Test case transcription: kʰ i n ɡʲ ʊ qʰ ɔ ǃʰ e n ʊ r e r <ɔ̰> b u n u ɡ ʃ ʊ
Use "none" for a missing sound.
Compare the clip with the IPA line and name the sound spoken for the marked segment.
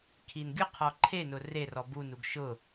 ɔ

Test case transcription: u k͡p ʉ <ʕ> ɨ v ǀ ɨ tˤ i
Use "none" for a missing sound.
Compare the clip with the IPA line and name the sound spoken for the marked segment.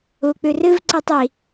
r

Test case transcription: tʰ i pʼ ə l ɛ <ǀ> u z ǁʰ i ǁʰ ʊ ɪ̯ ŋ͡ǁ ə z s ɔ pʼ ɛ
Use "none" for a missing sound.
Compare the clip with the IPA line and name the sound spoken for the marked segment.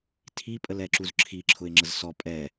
ǁ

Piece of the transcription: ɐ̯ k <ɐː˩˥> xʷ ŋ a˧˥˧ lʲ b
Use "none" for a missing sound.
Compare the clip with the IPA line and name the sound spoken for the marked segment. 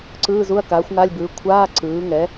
aː˩˥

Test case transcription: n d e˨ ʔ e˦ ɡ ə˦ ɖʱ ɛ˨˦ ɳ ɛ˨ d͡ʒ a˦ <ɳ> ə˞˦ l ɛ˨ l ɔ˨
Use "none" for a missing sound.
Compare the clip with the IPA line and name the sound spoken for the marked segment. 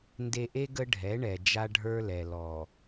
ɖʱ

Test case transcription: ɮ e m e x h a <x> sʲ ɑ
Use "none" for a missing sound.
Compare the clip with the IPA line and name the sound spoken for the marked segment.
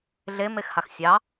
x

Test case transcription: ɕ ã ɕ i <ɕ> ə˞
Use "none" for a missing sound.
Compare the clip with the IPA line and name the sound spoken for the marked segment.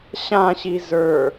z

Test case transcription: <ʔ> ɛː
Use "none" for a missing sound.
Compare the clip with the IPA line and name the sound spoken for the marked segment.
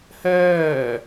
h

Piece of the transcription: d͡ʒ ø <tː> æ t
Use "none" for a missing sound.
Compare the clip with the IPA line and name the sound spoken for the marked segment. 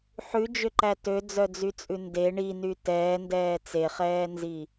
ǃ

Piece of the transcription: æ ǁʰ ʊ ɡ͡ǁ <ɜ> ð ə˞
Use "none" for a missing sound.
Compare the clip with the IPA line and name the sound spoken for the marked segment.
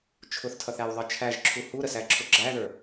æ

